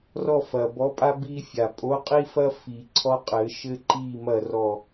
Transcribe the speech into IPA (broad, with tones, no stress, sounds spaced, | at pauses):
r ɔ˦˨ f ɐ˨˩ b ɔ˨˥ pʼ a˦ b i˦ fʲ a˨˩ pʼ o˨˥ qʼ i˦ f ɐ˦ f i˨˩˦ ǀʰ ɔ˦ qʼ ɘ˨˩˦ ʃ ɘ˦ ǃ i˦˨ m ɐ˦˨ r ɔ˦˨